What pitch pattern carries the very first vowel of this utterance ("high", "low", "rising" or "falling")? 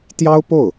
high